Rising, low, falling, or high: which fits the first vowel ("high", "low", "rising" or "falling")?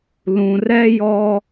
low